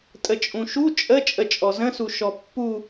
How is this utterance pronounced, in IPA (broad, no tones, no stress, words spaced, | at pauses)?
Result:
tʼət͡ʃʼũʃu t͡ʃʼə t͡ʃʼət͡ʃʼɔzə̃su ʃɔpːu